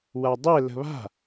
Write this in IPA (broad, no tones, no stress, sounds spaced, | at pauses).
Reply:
w a dˤ ɛ l ə̤ β a̤